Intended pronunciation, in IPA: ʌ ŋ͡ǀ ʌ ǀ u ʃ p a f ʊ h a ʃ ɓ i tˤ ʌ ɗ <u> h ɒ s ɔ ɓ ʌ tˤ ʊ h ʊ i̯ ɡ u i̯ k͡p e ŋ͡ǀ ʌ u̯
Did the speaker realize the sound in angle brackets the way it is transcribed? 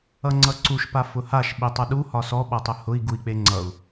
yes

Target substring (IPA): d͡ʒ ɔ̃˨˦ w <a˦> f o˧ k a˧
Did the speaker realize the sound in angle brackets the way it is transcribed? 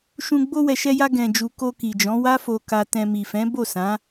yes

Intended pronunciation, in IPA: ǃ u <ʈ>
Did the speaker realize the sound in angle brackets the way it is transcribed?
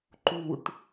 yes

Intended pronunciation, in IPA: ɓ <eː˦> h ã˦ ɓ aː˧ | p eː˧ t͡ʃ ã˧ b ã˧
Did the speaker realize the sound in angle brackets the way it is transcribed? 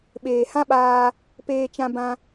no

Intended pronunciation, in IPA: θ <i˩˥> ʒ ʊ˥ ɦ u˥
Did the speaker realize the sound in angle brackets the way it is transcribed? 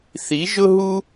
yes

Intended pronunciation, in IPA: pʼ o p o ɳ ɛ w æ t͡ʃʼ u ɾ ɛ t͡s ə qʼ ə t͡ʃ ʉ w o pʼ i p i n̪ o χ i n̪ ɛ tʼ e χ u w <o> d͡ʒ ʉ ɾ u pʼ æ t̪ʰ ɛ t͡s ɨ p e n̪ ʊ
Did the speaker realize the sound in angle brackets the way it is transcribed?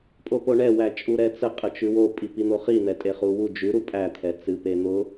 no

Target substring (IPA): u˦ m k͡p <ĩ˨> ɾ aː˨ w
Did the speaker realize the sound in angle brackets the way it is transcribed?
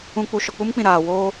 yes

